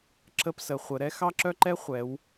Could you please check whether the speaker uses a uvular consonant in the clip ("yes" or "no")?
yes